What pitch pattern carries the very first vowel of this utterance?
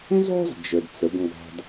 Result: high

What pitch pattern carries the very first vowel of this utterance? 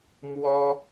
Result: high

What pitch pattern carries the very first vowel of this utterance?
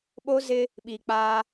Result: high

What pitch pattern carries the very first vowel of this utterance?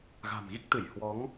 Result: low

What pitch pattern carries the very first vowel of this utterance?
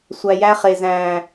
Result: low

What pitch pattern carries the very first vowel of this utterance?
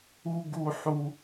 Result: high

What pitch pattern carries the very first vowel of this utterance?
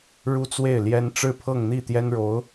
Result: high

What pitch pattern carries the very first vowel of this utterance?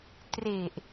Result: low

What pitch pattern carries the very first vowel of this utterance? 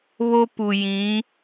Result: high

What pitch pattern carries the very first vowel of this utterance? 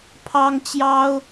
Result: high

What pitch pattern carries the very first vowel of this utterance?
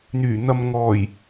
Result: low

